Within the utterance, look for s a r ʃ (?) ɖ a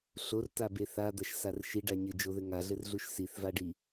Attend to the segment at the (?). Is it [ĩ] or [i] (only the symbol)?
i